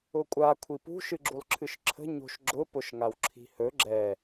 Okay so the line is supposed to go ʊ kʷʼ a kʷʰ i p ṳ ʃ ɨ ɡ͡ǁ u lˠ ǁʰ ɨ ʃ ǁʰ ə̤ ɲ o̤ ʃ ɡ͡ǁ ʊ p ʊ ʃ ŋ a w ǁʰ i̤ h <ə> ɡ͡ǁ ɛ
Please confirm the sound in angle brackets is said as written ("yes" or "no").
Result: no